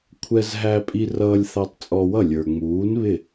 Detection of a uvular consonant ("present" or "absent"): absent